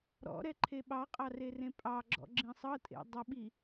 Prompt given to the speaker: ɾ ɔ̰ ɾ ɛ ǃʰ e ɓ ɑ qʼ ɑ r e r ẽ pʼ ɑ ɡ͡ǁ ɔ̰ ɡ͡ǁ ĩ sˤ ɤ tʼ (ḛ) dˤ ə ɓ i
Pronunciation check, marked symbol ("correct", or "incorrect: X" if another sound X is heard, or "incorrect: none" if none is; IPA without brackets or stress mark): correct